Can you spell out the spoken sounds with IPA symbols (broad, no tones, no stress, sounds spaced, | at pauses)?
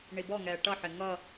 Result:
ɳ i b ɔ ŋ ɛː ʈ ʌ ħ ɪ ŋ ʌ